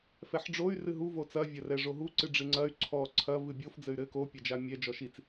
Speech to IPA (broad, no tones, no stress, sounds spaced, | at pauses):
f ɛ ħ ɖ͡ʐ o y̯ r ɨ ɦ u v o t͡s ɐ vʲ ɐ r ɛ ʐ o ɦ u ǀ ɨ ɖ͡ʐ ɨ ŋ͡ǀ ɐ y̯ ǀʰ ɔ ǀʰ ɐ v ɨ bʲ o f d͡z ɘ y̯ ɾ ɘ k o pʲ a d͡ʒ a mʲ ɛ d͡ʒ ɔ ʃ i t͡s